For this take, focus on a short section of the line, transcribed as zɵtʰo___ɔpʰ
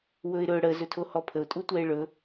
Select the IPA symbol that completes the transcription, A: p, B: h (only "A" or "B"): B